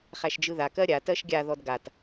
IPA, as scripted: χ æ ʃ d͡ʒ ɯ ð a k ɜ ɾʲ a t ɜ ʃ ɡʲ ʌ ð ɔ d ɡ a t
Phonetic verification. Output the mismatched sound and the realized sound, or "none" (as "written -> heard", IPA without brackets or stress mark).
ʌ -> a